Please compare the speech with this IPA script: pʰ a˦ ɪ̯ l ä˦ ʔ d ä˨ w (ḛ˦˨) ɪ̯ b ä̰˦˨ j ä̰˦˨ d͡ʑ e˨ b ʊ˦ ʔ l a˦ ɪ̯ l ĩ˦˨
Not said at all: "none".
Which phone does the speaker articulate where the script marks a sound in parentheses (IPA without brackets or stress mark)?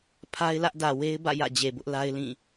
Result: e˦